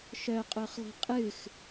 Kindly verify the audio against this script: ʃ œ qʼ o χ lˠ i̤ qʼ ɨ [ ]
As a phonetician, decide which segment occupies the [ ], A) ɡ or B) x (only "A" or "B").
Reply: B